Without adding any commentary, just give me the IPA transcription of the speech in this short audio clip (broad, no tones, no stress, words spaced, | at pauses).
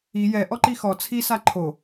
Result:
i jɛ ʔɔǃixɔ t͡sʰi saǃʰo